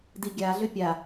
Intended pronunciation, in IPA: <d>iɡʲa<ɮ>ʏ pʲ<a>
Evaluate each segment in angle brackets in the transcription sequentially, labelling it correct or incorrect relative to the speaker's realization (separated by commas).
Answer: correct, correct, correct